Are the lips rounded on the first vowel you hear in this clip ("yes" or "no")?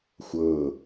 no